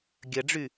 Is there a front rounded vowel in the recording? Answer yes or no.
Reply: yes